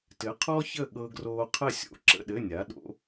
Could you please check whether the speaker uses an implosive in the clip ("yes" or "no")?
yes